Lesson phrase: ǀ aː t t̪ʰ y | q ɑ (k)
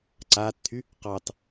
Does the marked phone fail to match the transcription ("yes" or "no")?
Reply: yes